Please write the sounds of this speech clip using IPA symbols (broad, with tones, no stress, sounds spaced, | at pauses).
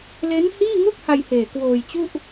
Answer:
l e˦˥ n h iː˥˩ ŋ u˥˩ k̚ h a˧ j h eː˨˩ k w oː˧ j t͡ɕ u˥˩ ʔ